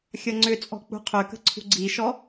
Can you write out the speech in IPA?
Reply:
xʲ ʌ ŋ͡ǀ ʏ t͡sʼ ɔ̤ k͡p ṳ qʰ ø k ə̤ ǀʰ ṳ ɡ͡ǀ i ʃ ɔ

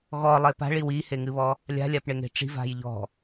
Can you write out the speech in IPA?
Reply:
ɣ ɔ lˠ e p a̤ ɭ i w i h e ŋ ɨ β ɔ | lʲ a̤ lʲ a p ɳ e ŋ e̤ ʈ͡ʂ i̤ v a̤ j ʎ ɔ̤

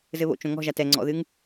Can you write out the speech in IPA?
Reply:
z ɘ β o̰ t͡ʃ õ ŋ ɔ̤ ʒ a t ɛ ŋ͡ǀ ɔ̰ ð ɨ ŋ

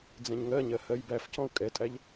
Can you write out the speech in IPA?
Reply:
d͡z ɛ̃ ɲ ŋ ɜ ɲ ɜ h ɜ j b æ f c ɔ̃ u̯ kʼ ɛ tʼ æ ʎ

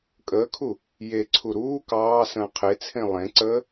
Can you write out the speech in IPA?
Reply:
kʼ əː kʰ u | j e ǀʰ u ɾ uː k ɑː s ə̃ː qʰ e t͡sʰ ẽ lˠ ẽ ǀ əː

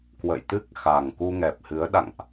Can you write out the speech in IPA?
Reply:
k w ə̰˧˨ j t̪ ɨ˦˥ k̚ x a˨˩ ŋ k u˧ ŋ ɛ˨˩ p̚ h ɨ˨˦ ə̯ ɗ a̰˧˨ ŋ ʔ

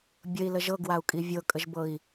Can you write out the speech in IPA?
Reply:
bʲ ə i̯ l ə ʒ ɤ ɡ w a u̯ kʼ i vʲ ɤ kʼ ə ʒ b ɤ i̯

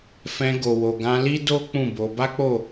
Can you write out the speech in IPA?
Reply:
f ɛ̃˧ ɡ o˨ w o˨ ɡ ã˧ l i˦ d o˦ k͡p ũ˦˨ b o˧ b a˦ k͡p o˦˨

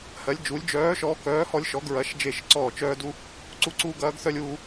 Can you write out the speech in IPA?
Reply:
h ɜ˧˥ lʲ d͡ʒ uː˧˥ lʲ d͡ʒ œː˧˥ ʃ ɔː˧˥ k œː˧˥ h ɔ˥ lʲ ʃ ɔ˧˥ ɡ ɹ ɐ˧˥ ʃ d͡ʒ e˥˧ ʃ ǀ ɔː˥˧ t͡ʃ œː˥ d u˥ | ǀ u˥ ǀ uː˥ ɡ ɐː˧˥ ɡ θ œ˥ lʲ uː˥

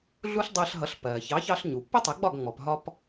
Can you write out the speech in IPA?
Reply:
ɮ u˥ ɬ dˤ ɜ˧ ɬ ɦ ʌ˩˥ ɬ p ɜː˩ ç ɑ˩˥ ç ɑ˧ ɬ ɲ u˩ pː ə˥ tˤ ə˩˥ ɡ͡b ɒ˥˩ ɡ ŋ͡m ɔ˩ p ɦ ɒ˧ p

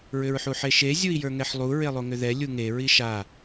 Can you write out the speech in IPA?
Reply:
ɹ ʏ ɹ ħ u ħ e ʃ e zʲ u i̯ j ə˞ ŋ ɛ ħ lˠ u ɹ e lˠ o ŋ ʏ ð ɛ lʲ u ŋ e ɹ i ʃ a

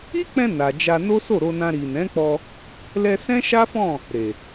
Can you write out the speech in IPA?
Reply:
i˦ k͡p ɛ̃˧ n a˨ d͡ʒ a˧ n o˦ s o˦˨ ɾ o˧ n ã˧ ɾ i˨ n ɛ̃˨˦ k͡p ɔ˧ | l ɛ˧ s ɛ̃˦ ʃ a˦ f ɔ̃˦˨ | ɾ e˨

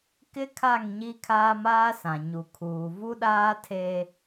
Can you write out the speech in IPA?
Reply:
k ɪ˦ kʰ a˦˨ ŋ ɲ i˦ kʰ aː˦ m aː˦ s ã˨ ɲ u˨ kʰ uː˨ v u˦ ɗ aː˦ tʰ eː˦

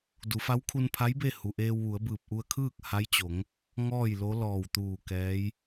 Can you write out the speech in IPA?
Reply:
d u˩˧ f a˧˥ w kʰ u˧ n pʰ a˧˥ j b e˥˨ h u˩ ʔ eː˧ w ʋ u˩˧ ə̯ b ɯː˧˩ p̚ ʔ u˧ ə̯ kʰ ɯː˥˨ k̚ h a˧˥ j t͡ɕ o˩˧ ŋ | ŋ ɔː˥˨ j l o˧˥ l ɔː˧˩ w t̪ uː˧˩ k ɛː˧˥ j

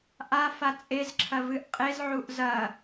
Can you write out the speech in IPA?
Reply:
ʔ a f a t͡sʼ e z ǁʰ ɐ v ɨ ʔ qʼ e z ʕ u ʔ z ɐ

